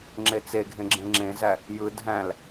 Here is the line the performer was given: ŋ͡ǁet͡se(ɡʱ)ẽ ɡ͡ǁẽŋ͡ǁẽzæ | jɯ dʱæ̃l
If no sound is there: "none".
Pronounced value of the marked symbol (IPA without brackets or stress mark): ɡʱ